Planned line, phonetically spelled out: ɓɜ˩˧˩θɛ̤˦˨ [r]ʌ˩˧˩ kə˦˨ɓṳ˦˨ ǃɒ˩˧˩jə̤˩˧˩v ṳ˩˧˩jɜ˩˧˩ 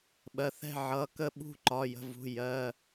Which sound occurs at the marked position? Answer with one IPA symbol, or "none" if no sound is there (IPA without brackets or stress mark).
ʕ